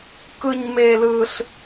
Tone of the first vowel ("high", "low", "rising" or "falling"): high